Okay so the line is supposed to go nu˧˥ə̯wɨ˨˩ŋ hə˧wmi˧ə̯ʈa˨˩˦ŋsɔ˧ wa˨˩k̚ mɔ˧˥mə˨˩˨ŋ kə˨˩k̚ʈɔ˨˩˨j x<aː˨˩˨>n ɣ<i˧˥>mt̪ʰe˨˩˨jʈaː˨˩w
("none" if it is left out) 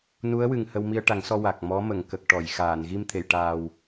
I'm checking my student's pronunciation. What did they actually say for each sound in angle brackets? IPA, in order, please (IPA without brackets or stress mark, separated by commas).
aː˨˩˨, i˧